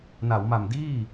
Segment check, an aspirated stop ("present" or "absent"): absent